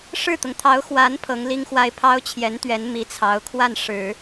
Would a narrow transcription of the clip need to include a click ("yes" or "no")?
no